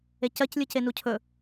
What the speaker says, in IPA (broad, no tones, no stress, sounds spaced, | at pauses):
e c ɜ c lʲ ɯ c e n u cʰ ɵ